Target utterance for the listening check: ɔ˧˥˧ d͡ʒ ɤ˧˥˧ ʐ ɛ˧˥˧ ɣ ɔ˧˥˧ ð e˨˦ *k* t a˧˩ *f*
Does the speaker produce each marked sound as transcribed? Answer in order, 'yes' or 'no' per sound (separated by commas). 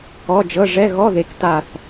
yes, no